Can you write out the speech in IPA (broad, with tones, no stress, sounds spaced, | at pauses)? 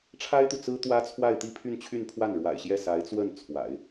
ʈ͡ʂʰ a˥ ɪ̯ t̪ u˨ t͡s ɹ̩˥ t̪ w ä˥ t͡sʰ w a˥˧ ɪ̯ t̪ i˥˧ pʰ y˥˧ n t͡ɕʰ y˥˧ n pʰ w a˥˩ n ɻ w a̰˨˩ ɪ̯ ɕ j ɛ˥˩ s a˧˥ ɪ̯ t͡s w ə˥˩ n t͡sʰ w a̰˨˩˦ ɪ̯